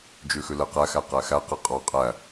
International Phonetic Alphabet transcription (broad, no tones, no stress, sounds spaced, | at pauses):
d͡ʒ ʉ x ʉ l ɛ q æ x æ q æ x æ q e qʼ ɑ qʼ æ